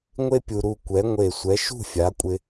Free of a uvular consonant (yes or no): yes